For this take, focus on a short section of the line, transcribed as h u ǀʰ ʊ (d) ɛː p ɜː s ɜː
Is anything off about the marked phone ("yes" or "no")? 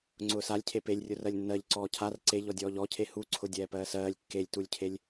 yes